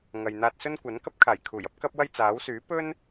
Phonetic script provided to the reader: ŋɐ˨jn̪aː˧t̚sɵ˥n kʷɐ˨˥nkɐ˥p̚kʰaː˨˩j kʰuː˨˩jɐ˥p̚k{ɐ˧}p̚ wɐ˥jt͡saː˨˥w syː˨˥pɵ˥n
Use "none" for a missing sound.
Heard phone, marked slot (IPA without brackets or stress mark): ɐ˥